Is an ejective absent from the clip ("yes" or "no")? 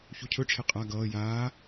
no